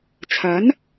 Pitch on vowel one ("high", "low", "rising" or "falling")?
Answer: rising